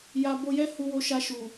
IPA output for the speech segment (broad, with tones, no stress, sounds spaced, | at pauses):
j a˧ b o˧ j ɛ˦ h u˧ w o˧ ʃ a˧ ʃ u˨